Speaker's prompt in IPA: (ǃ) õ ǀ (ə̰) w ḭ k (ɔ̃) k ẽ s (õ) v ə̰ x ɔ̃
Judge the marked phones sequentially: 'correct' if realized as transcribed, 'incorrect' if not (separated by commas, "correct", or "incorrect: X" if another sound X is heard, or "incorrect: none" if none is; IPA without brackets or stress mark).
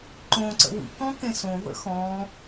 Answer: correct, correct, correct, correct